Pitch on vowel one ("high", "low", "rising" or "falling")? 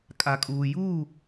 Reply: low